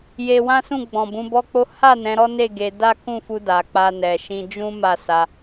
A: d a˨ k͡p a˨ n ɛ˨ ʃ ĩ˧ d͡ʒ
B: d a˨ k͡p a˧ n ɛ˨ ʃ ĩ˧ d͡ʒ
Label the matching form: B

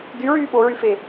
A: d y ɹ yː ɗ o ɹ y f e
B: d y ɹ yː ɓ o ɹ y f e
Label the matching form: B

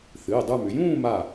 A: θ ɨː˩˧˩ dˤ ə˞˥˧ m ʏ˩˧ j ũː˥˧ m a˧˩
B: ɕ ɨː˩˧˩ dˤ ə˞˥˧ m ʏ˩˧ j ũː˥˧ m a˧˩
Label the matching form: A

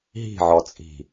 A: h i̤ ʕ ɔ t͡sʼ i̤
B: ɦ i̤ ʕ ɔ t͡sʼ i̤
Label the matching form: B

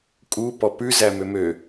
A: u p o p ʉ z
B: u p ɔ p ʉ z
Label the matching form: B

